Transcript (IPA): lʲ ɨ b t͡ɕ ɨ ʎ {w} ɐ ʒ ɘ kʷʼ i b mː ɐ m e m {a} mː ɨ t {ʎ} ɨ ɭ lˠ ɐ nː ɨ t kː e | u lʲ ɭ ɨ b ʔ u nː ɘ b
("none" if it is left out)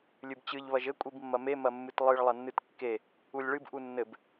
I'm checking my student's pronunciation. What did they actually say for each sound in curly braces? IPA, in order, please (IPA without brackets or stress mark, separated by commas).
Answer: β, ɐ, lˠ